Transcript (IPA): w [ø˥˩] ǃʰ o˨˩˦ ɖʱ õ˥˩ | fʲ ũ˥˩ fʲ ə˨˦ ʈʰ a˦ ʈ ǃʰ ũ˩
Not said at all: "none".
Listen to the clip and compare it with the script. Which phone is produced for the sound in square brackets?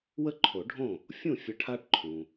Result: ə˥˩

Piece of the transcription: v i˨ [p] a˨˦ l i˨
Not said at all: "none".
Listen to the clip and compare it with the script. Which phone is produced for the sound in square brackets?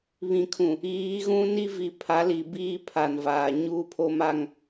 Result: pʰ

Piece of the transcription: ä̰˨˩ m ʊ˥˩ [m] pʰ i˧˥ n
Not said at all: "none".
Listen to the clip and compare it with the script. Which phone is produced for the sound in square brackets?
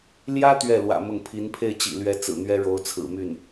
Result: ŋ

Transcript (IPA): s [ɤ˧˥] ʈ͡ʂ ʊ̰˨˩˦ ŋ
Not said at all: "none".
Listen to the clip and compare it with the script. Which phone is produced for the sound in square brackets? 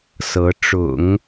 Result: ɤ˧˥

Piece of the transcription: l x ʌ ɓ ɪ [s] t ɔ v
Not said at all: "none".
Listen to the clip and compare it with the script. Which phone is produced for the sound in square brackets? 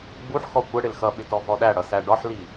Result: none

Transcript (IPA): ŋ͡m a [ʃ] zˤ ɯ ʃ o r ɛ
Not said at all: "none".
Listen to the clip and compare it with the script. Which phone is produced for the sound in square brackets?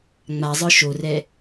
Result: none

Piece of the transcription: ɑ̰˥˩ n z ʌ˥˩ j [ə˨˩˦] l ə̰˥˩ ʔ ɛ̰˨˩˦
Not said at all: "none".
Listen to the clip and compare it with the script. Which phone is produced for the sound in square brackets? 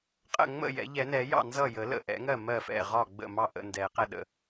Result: ə˨˩˦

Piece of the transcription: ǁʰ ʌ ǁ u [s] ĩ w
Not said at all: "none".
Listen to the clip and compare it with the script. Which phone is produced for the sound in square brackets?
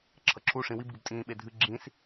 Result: ʂ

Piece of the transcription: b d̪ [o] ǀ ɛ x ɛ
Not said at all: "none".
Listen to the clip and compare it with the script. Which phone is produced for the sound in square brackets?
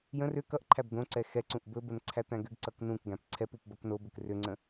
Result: õ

